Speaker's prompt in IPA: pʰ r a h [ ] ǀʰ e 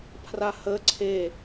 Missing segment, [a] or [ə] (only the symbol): ə